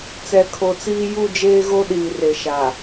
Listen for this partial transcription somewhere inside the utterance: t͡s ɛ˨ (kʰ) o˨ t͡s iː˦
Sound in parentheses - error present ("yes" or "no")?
no